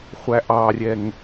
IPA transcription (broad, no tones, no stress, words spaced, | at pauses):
χʷæʔɑrʲɛŋ